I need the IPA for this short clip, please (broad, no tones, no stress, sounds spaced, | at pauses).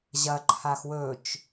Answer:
ʑ ɐ ǃʰ a x w ɵ t͡ʃ